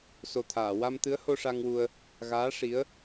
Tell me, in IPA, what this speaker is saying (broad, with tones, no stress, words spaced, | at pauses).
so˨˩t̪ʰaː˨˩˨ wa˧m t̪ɨ˧˥ə̯ho˧ʂa˧ŋwu˧ə̯ | ɣaː˧˥ ʂi˧˥ə̯